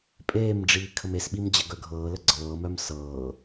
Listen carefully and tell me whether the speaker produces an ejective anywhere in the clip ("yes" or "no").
yes